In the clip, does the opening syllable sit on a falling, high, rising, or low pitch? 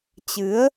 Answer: rising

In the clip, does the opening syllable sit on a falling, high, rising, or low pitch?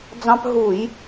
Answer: high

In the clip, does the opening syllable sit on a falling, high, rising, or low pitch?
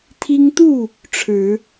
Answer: high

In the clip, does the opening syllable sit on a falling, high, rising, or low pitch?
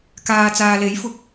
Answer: low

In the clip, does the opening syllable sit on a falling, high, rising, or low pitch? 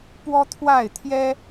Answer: high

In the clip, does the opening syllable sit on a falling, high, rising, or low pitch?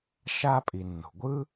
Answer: high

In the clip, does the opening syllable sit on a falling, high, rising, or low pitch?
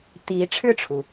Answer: rising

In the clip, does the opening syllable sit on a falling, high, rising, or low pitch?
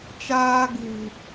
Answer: high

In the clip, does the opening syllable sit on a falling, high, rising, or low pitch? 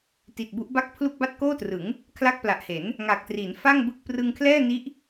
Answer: low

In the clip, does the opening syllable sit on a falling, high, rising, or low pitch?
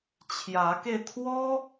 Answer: rising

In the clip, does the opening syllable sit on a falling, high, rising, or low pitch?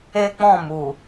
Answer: high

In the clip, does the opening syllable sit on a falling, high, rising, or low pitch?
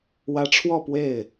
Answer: rising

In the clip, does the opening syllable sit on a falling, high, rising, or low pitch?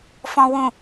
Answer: low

